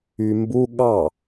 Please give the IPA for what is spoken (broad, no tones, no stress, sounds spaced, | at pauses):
y m b u ɠ ɑ